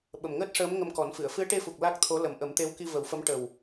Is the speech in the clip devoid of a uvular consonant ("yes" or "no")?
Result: yes